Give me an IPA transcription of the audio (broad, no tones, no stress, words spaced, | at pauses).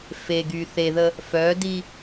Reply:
feɡy θeðə | fœdi